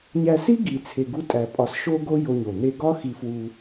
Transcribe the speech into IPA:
ɲ æ˧ s i˥ ɡ i˧ t͡sʰ e˧ ɡ u˥ tʼ æ˧ pʼ ɒ˧ s ʃ o˥ ɡ o˥ j o˧ ɲ o˩ n̪ e˧ ɡ ɒ˥ x i˧ f w u˧

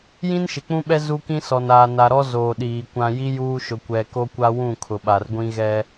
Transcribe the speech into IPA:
j ĩ˦ n ʃ ɪ˨ k͡p ũ˦ ɓ ɛ˦ z u˦ k ĩ˦ s ɔ˨ n aː˨ n a˨ ɾ ɔ˦ z oː˨ ɗ iː˨ kʷ ã˨ j i˦ j uː˦ ʃ ʊ˨ kʷ ɛ˨ k o˦ kʷ a˦ w ũ˦˨ kʰ ʊ˨ ɓ a˨ r ɡʷ ĩ˦ ɣ ɛ˦

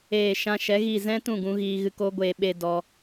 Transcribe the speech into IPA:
eː˨ ʃ ã˧ ʃ ɛ˨˦ ɣ i˦˨ z ɛ̃˦ t ũ˦˨ ɡ ũ˧ ɣ iː˧ ɣ ɨ˧ k o˦ ɡʷ eː˧ ɓ e˦ d ɔ˦

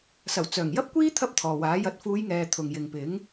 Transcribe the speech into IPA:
s ɐ˨˩ w t͡s œː˨˩ ŋ j ɐ˥ p̚ kʷ iː˥ t̪ʰ ɐ˥ p̚ t̪ʰ ɔː˨ w aː˨˥ j ɐ˧ t̚ f uː˨˧ j ŋ ɛː˨ t̪ʰ ʊ˨ ŋ j ɪ˨ ŋ p ɪ˨˥ ŋ

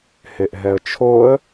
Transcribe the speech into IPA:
h e ʔ ɦ ɛ ə̯ t͡ʃʰ o ə̯

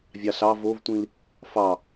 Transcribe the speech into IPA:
vʲ ɑ ɬ ɑ v o v tʷ ĩ l | f ɑ

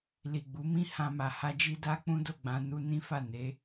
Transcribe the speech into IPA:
l i˨ ɡ͡b u˨˦ m ĩ˦ h ã˧ m a˨ h a˧ d͡ʒ i˧ d a˦ k͡p ũ˦ d o˦˨ ɡ͡b ã˧ n u˧ n ĩ˦ f a˦˨ n e˨˦

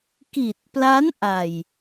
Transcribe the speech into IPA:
k i˨˩ t̚ p l a˦˥ n ʔ a˨˩ j

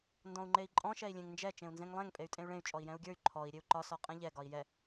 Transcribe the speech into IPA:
n d ɔ̃ u̯ ŋ͡ǃ e i̯ ǃʼ ɔ̃ ʃ ɛ i̯ lʲ ẽ ŋ n d͡ʒ ɛ t͡ʃ ẽ u̯ n z ẽ ŋ lˠ ɛ̃ ŋ pʼ e y̯ tʼ ẽ y̯ ɭ ẽ y̯ t͡ʃʼ ɔ i̯ j ɛ̃ u̯ ɡʲ ə˞ y̯ ǃʰ ɔ i̯ ɾʲ e u̯ ǃ ɒ s ɔ qʼ ɛ̃ ʎ ɛ ɡ ɒ i̯ j ɛ

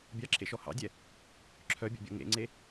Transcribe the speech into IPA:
bʲ ɑ ǁʰ ḛ ʃ ɔ h ɑ̰ dʲ ɛ | ǁʰ œ bʲ ɔ̰ bʲ ɔ̰ ŋ ḛ ŋ͡ǀ e

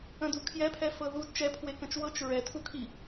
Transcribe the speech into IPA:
ə̃ d u kʰ j ɛ pʰ ɛ f ɤ ð u d t͡ʃ ɛ pʰ w e k ə̃ t͡ʃ w ɤ t͡ʃ ɹ ɛ tʰ u kʰ i

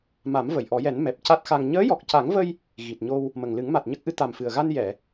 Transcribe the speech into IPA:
m a˨˩˦ m v ə˨˩˨ j ʔ ɔ˨˩˦ j ɛ˨˩˦ n m ɛ˨˩ p̚ c a˦˥ t̚ x a˧ ŋ ɲ əː˧˥ j ɔ˨˩ k̚ c a˨˩˦ ŋ v ə˧ j | ɣ i˨˩ t̚ ɲ o˧ w | m ə˨˩ ŋ l ɨ˨˩˦ ŋ m a˨˩ t̚ ɲ ə˦˥ k̚ ʔ ɨ˧˥ t̪ a˨˩ m f ɨ˨˩ ə̯ ɣ a˧ n j ɛ˨˩˨

